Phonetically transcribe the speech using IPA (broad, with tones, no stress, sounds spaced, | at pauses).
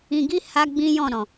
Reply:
ĩ˧ ɡ i˦ h a˦ ɡ͡b ĩ˦ j ɔ̃˦˨ ɾ ɔ̃˨